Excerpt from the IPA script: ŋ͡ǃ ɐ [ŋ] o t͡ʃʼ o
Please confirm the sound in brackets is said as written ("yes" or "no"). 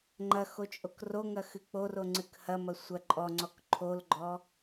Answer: no